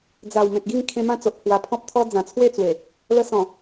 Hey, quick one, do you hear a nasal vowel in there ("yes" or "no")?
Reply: yes